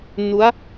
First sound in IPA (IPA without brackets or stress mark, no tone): n